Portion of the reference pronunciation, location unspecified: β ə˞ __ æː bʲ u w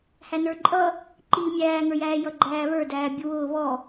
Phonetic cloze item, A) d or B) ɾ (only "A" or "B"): A